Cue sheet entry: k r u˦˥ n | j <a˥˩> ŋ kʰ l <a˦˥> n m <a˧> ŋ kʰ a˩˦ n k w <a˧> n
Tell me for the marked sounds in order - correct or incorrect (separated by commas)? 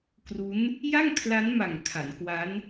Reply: correct, correct, incorrect, incorrect